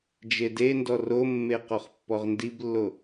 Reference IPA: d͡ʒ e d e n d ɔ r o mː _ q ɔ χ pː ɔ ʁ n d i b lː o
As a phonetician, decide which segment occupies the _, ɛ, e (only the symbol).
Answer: e